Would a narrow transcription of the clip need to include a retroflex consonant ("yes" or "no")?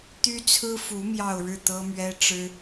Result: yes